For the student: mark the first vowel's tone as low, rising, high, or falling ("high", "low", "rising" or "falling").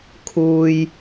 low